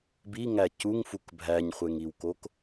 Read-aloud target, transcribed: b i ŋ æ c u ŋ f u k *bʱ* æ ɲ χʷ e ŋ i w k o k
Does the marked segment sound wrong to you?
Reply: no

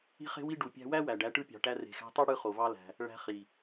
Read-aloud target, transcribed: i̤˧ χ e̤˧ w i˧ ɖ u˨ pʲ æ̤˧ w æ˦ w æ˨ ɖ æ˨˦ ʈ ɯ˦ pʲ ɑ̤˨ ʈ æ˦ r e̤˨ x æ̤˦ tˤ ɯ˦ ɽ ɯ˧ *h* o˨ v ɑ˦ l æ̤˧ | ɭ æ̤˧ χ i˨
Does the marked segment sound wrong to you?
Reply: yes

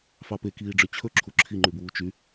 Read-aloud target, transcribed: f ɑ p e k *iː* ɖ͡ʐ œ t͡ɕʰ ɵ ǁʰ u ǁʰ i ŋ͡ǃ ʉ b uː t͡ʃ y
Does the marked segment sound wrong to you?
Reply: no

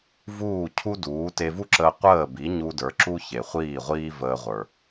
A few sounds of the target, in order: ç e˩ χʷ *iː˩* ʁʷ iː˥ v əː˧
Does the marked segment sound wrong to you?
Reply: yes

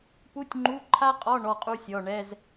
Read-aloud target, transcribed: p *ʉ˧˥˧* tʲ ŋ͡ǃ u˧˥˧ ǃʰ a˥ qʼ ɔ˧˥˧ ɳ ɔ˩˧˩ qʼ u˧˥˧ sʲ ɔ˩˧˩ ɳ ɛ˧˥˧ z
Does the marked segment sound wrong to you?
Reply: yes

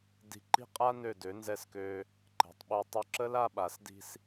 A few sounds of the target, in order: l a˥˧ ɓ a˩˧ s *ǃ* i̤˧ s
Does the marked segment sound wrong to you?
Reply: yes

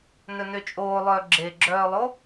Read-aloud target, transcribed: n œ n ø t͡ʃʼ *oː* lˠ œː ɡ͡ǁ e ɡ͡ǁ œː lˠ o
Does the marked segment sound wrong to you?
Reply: no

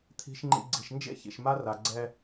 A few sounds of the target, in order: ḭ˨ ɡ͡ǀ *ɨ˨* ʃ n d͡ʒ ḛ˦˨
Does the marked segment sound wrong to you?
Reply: yes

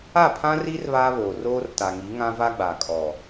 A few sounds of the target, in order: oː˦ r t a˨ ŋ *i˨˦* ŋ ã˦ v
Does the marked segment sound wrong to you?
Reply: no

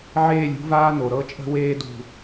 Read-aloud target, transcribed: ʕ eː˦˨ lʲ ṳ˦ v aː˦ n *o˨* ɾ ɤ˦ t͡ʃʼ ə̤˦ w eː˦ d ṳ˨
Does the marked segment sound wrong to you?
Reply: no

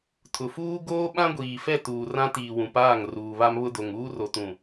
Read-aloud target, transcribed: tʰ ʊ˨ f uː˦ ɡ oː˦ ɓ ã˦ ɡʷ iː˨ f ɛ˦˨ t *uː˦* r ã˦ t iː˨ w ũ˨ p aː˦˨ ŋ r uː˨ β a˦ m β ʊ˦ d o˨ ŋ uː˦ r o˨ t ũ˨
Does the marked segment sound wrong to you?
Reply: yes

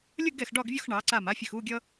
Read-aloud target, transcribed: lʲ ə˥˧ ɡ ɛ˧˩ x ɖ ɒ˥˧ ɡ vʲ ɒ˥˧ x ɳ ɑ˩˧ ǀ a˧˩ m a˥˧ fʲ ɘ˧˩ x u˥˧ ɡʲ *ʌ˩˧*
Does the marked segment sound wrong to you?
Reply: yes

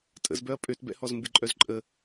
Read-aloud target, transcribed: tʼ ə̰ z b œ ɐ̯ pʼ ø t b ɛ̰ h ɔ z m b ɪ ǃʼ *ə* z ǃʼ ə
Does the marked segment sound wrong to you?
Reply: yes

